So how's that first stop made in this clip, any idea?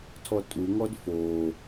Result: aspirated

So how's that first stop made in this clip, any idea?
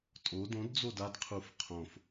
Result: ejective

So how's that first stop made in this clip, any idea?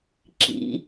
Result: click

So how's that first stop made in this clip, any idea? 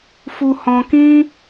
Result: plain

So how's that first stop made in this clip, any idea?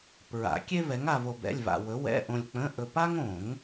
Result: plain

